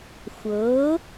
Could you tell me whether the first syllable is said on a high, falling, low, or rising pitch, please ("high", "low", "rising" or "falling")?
rising